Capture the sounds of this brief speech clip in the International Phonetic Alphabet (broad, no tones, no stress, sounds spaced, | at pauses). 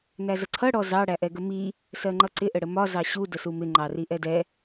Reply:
n æ z ə ǀʰ ʌ ɽ ɔ z ɑ ɽ æ ʔ ɛ ɡ ə m i | s ɜ ŋ͡ǃ ʌ ǀ ɪ ʔ ə ɽ ə m ɒ z ɑ ɕ u d ə s u m ɪ ŋ͡ǃ ɑ r i ʔ ɛ d ɛ